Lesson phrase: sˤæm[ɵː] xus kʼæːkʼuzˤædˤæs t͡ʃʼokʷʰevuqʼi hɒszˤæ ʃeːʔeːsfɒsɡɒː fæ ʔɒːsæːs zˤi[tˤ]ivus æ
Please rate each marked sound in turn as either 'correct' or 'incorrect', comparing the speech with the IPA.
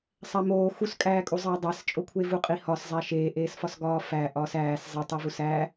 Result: incorrect: oː, correct

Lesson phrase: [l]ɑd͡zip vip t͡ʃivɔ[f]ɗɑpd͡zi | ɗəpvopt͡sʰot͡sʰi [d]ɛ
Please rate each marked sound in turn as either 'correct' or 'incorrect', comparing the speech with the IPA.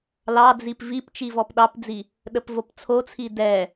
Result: correct, incorrect: p, correct

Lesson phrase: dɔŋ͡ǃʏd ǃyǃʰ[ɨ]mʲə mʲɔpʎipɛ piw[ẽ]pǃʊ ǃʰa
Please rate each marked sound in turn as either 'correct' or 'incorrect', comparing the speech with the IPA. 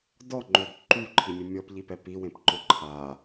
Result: incorrect: i, correct

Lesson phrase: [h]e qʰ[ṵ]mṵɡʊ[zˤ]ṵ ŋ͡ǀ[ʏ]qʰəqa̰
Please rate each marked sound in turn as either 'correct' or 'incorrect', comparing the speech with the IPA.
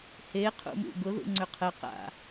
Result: correct, correct, incorrect: ð, correct

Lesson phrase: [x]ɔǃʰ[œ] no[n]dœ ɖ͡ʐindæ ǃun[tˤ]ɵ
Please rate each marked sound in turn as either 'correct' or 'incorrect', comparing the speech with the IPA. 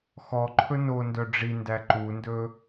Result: correct, incorrect: ɵ, correct, incorrect: d

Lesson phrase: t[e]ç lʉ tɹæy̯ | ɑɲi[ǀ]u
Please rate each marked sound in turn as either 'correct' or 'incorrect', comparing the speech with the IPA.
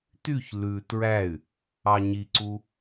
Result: incorrect: y, correct

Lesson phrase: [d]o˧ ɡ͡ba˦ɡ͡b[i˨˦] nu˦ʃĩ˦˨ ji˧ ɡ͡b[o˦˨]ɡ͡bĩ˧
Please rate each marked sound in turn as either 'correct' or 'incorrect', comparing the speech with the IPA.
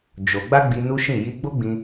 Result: incorrect: d͡ʒ, incorrect: i˧, incorrect: o˦

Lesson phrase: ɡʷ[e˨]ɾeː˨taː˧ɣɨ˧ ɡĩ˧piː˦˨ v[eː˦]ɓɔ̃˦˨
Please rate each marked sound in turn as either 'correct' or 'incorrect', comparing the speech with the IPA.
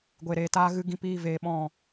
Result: correct, incorrect: eː˧

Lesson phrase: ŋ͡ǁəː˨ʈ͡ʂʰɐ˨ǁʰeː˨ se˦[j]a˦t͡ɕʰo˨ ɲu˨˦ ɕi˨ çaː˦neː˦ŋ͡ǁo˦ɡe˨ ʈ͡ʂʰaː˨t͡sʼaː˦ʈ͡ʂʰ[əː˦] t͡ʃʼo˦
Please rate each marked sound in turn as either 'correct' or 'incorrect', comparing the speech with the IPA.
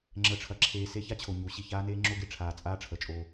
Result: incorrect: ç, incorrect: əː˨

